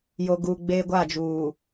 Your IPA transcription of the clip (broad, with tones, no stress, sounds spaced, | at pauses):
j o˨ ɡ uː˨ ɡ͡b eː˦ ɡʷ a˦˨ d͡ʒ uː˨